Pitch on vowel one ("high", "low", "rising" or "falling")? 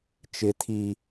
low